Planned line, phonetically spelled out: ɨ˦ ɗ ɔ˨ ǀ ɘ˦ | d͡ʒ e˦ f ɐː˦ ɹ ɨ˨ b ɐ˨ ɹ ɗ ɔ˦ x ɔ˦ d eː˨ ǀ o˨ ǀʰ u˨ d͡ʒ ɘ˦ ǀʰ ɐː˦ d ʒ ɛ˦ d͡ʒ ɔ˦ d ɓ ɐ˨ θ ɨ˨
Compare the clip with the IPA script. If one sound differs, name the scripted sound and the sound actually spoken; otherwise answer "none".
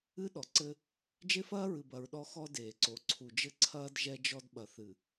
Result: none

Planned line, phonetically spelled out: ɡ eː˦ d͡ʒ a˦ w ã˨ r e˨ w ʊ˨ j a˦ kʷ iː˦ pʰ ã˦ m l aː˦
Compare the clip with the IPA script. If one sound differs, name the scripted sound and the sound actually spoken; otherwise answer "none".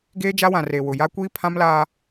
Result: none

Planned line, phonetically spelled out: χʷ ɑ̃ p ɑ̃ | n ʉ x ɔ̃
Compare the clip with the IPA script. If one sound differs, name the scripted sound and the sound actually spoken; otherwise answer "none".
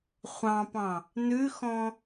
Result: none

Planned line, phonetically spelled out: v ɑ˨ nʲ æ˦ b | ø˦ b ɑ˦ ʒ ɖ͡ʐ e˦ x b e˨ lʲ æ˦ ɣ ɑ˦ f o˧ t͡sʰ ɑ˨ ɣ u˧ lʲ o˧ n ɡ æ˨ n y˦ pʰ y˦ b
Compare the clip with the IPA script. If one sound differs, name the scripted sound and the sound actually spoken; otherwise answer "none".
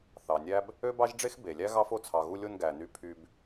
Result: v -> θ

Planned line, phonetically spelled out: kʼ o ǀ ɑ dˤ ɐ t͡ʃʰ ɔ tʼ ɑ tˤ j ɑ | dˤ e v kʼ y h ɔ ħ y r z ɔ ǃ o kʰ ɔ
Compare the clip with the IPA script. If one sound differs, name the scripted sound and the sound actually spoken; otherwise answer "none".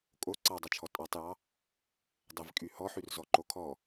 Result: none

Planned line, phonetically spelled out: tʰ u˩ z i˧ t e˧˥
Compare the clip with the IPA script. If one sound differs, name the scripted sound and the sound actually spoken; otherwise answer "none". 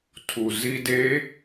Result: t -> d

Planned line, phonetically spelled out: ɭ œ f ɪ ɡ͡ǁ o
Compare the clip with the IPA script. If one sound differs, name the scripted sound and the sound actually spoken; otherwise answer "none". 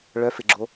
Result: none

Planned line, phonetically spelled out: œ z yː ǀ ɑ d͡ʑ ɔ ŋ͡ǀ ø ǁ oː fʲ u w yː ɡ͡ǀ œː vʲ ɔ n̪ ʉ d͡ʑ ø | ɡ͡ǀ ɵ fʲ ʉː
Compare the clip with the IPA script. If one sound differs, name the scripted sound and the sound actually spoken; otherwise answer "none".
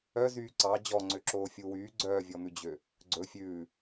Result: none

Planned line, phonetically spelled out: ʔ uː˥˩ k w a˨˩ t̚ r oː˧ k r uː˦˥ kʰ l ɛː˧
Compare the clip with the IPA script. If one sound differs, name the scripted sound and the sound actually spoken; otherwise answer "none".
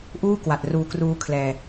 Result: oː˧ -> uː˧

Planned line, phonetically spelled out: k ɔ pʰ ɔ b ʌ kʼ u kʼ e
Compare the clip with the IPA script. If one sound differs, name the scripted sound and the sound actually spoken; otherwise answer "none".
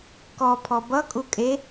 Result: none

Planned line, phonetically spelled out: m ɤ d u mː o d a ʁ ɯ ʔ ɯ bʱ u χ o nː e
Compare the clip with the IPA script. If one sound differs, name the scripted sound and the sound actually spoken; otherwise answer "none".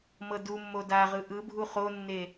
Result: none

